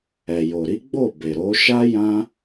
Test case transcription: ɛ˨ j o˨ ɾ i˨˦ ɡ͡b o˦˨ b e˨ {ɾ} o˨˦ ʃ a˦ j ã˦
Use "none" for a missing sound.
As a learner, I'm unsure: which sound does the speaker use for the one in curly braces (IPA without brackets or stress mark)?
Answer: ɾ